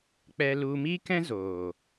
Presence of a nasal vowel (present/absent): present